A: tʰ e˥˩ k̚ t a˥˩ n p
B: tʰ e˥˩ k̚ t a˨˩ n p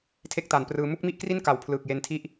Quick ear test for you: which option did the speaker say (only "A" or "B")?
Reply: B